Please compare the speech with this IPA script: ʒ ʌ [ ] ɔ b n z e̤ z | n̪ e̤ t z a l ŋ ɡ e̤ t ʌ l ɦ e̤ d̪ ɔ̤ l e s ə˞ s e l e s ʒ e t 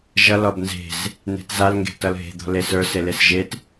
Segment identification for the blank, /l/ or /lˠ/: l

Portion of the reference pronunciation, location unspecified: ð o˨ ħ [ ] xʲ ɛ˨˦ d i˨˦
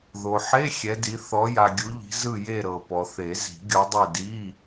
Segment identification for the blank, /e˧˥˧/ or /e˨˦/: e˧˥˧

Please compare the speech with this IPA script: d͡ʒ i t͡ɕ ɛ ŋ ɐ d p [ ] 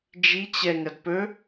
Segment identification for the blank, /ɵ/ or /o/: ɵ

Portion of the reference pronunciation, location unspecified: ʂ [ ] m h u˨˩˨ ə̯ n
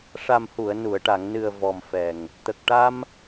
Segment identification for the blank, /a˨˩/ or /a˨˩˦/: a˨˩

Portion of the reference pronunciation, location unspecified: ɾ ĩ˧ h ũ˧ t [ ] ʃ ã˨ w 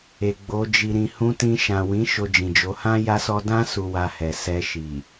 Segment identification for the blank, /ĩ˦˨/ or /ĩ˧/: ĩ˧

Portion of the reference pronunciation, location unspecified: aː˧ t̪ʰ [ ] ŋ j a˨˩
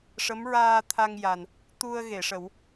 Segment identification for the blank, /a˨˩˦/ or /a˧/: a˧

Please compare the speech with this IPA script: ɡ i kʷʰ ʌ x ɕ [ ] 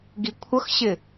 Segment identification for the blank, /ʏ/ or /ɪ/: ɪ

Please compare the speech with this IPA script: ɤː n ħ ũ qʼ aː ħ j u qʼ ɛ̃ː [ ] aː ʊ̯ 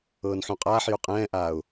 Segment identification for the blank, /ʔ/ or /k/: ʔ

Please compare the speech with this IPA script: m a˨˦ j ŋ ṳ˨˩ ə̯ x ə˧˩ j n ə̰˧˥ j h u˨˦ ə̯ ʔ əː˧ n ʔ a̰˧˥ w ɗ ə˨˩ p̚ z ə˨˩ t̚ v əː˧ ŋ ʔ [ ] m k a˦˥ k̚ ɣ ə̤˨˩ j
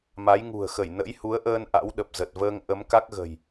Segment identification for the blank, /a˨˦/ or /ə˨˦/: ə˨˦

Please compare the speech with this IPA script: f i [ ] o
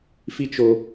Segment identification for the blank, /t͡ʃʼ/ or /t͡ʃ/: t͡ʃ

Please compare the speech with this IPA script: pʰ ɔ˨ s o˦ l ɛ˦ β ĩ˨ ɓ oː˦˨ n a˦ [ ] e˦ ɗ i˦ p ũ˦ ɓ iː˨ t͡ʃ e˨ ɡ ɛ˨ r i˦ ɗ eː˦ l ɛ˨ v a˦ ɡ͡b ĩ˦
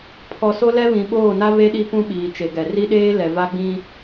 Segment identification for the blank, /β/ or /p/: β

